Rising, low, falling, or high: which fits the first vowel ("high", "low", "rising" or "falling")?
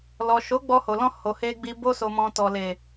low